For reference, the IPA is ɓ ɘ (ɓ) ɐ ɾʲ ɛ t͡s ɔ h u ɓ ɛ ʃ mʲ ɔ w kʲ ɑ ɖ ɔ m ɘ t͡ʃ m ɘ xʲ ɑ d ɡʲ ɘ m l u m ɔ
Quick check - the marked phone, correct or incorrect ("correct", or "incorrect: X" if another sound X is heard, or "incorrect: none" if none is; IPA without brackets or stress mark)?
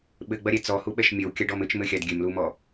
incorrect: ɡ͡b